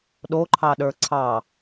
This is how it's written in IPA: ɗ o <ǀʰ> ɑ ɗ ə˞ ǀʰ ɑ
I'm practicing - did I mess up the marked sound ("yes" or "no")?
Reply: yes